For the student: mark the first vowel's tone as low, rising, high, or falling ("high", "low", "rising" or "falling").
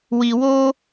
low